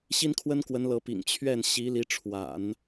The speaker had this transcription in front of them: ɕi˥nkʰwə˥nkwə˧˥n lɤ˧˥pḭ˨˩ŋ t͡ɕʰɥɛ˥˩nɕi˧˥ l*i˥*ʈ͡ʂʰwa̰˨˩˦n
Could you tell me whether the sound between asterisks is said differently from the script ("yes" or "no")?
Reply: yes